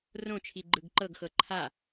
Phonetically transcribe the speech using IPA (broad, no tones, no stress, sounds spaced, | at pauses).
r õ t͡ʃʰ i ɡ͡ǃ ɯ ɡ ǃ ɤ ɡ x ɤ ǃʰ a